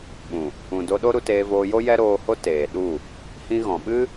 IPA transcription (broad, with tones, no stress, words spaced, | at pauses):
ɓũ˨ | ũ˨do˧ɗo˦ ɾu˧teː˧voː˧jo˦ jɛ˦ɾoː˧ho˦ teː˨ɗu˦˨ | hĩ˧ɣɔ̃˨ɓɨ˦